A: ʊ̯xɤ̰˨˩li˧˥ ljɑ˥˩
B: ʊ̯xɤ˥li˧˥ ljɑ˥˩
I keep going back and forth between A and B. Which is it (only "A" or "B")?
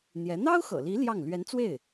A